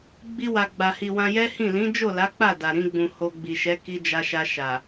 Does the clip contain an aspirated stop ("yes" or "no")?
no